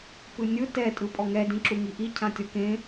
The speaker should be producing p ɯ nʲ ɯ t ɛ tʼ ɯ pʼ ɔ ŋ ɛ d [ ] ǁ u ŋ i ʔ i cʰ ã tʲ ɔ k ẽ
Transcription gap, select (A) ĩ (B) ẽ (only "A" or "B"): A